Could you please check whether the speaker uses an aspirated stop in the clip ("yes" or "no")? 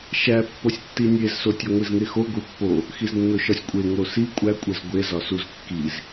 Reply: no